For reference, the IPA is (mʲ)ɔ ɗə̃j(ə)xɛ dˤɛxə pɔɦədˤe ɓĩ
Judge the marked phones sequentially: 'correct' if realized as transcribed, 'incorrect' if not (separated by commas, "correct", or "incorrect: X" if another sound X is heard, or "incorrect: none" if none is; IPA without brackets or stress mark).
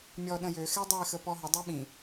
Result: correct, incorrect: ø